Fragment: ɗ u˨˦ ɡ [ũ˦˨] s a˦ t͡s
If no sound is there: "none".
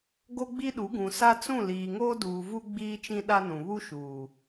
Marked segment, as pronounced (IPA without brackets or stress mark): ũ˨